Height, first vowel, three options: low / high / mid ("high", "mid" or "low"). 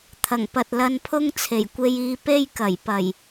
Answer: low